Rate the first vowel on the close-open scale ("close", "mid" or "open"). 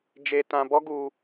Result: mid